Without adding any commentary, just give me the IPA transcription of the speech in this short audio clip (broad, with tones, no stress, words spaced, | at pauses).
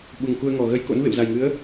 ɓu˨˩ŋku˧ə̯ŋɔ˨˩ ɣə˧jko̰˧˥nvḛ˧˨w za˨˩jŋɨ˨˦ə̯